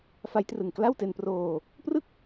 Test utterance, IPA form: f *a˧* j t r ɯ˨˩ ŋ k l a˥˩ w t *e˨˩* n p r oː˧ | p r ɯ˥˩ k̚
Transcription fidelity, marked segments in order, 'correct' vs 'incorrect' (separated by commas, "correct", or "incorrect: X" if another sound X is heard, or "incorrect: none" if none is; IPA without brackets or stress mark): incorrect: a˦˥, incorrect: e˧